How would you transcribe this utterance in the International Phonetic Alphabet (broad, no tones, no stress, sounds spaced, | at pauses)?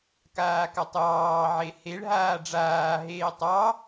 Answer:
k aː k a tˤ j ɑː ʕ e h e ɭ ɦ aː ɖ͡ʐ aː ɦ eː tˤ ɑ